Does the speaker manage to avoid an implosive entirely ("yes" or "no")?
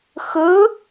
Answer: yes